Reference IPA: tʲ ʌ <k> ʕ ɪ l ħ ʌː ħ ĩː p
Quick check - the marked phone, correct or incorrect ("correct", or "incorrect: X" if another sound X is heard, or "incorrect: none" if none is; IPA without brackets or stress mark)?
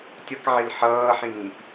correct